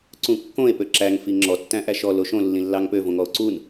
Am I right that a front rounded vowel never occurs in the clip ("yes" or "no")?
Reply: no